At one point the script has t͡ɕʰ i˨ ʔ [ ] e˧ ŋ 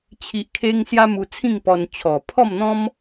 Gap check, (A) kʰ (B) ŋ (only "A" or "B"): A